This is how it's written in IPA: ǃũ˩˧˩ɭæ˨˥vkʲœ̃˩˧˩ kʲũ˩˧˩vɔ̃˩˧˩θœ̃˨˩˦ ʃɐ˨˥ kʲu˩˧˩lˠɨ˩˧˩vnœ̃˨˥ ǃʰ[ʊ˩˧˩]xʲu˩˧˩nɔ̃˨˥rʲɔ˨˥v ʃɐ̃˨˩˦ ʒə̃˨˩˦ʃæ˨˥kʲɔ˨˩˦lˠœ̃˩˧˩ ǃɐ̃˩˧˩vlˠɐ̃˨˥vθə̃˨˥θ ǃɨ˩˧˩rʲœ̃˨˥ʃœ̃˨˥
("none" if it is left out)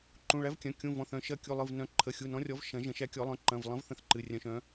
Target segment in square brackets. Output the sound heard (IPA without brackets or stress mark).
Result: ə˩˧˩